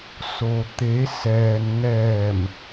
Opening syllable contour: low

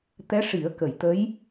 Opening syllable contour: rising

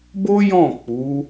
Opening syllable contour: high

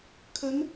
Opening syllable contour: rising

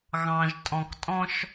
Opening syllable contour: low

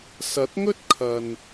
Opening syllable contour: rising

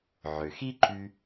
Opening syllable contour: low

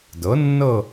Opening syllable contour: rising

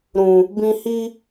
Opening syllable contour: low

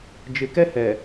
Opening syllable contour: low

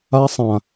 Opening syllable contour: high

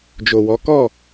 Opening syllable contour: low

